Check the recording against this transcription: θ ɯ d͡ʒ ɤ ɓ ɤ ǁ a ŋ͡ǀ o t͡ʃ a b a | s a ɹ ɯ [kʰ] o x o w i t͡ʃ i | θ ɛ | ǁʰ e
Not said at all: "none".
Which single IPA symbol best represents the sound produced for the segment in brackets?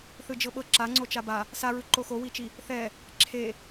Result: ǃ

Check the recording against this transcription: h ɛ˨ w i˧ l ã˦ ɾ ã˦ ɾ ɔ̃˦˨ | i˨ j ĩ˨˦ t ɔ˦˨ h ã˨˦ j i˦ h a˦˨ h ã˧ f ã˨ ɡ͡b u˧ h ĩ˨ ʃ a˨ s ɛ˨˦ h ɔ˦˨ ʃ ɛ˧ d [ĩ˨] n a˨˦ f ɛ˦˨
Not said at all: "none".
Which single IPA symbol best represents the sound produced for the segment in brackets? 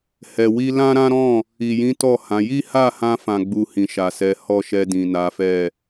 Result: ĩ˨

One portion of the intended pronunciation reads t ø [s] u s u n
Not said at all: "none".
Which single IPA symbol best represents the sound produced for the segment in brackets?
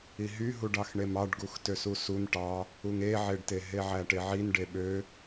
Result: s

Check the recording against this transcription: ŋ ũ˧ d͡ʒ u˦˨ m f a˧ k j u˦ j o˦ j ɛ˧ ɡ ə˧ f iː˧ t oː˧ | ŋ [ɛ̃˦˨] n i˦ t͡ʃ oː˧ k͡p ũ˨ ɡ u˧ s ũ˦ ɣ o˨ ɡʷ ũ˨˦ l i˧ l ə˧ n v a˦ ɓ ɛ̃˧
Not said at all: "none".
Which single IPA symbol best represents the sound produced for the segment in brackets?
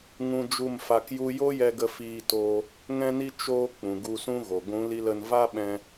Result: ɛ̃˦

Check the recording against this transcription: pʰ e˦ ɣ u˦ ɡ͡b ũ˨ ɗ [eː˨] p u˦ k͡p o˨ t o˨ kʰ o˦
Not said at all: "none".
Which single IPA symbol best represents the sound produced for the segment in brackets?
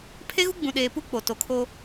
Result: eː˨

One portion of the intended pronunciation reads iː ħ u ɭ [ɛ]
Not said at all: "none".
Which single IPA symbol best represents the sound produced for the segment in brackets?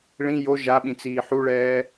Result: ɛː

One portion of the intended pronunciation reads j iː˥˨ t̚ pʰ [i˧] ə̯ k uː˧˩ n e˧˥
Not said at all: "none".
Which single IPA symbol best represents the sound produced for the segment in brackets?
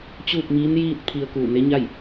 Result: i˧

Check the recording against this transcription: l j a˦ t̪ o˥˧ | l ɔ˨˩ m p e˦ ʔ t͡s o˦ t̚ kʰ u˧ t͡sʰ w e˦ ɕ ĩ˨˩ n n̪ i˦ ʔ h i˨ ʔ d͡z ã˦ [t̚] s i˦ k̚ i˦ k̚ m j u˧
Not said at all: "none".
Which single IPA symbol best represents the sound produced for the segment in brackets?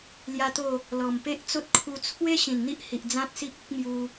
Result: t̚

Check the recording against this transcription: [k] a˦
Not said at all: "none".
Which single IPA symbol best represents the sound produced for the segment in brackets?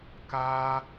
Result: k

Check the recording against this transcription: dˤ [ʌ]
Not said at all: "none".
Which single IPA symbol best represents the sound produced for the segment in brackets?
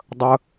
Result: ə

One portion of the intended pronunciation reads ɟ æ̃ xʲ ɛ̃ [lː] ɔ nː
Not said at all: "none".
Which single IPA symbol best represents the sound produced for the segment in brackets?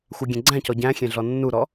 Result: ɮ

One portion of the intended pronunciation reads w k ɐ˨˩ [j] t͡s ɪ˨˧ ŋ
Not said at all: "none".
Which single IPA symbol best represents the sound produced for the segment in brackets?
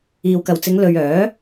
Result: w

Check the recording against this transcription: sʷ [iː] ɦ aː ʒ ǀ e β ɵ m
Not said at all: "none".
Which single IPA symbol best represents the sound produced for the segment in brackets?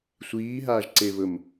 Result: iː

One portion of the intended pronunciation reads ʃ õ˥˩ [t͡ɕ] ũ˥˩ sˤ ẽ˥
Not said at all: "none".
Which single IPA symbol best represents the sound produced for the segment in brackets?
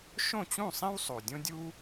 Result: t͡ɕ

